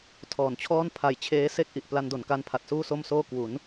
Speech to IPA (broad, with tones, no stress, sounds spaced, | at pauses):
tʰ ɔː˩˦ n t͡ɕʰ ɔː˥˩ n pʰ a˨˩ j t͡ɕʰ eː˦˥ s e˥˩ k̚ ʔ i˨˩ ʔ p l a˧ n d o˩˦ n k a˦˥ n pʰ a˨˩ t̚ s uː˥˩ s o˥˩ m s oː˥˩ k w u˩˦ n